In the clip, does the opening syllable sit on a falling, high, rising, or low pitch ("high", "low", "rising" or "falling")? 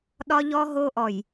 high